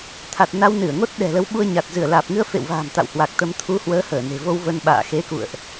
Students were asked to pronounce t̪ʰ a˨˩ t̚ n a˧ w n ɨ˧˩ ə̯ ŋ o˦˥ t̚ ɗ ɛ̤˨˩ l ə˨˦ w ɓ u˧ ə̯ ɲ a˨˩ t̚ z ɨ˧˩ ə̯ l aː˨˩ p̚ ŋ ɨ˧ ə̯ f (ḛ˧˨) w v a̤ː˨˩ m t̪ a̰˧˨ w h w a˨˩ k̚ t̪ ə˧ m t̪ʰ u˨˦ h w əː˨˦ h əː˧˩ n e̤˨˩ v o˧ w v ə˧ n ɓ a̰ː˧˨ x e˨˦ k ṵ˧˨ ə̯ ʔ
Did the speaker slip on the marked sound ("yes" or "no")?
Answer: no